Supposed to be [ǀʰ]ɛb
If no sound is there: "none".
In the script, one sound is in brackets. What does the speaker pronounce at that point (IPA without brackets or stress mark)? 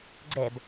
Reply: ɡ͡ǀ